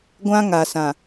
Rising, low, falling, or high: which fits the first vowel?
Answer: high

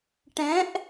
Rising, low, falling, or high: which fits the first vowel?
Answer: rising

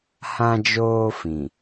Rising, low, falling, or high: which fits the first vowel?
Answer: high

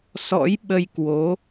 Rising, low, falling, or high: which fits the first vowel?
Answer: rising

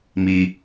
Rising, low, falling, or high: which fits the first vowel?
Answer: low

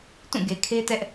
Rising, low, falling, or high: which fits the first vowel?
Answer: falling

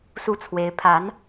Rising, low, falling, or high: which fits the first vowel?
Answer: falling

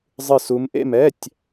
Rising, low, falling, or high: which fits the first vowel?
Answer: falling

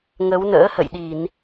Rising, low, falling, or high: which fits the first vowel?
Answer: rising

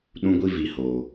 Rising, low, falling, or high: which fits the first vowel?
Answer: high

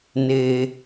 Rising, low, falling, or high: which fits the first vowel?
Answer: low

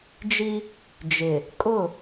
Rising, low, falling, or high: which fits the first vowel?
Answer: high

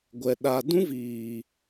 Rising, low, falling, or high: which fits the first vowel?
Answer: low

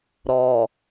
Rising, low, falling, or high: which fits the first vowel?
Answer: low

